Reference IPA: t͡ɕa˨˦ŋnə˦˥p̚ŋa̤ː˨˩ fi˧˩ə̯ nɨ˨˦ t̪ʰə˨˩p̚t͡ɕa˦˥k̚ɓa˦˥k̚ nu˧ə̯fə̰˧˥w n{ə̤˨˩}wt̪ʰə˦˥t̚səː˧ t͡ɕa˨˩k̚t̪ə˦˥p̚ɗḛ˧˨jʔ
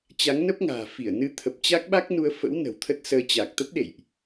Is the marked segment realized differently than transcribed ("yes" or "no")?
no